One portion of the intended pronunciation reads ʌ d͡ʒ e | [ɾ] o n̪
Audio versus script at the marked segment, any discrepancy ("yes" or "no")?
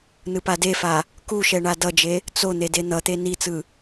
yes